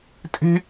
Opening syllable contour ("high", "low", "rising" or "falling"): high